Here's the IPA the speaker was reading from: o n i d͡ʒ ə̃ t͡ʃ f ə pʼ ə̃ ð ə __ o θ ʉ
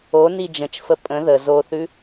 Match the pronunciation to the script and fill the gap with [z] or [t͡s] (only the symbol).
z